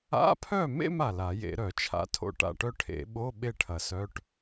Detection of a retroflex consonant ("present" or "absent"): present